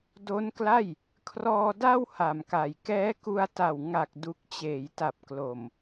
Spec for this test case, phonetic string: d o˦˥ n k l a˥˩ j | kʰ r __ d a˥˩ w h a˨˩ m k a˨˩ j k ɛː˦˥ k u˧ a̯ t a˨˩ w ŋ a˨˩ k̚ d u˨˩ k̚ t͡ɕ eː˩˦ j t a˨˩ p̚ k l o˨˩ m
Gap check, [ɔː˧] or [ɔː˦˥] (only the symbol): ɔː˧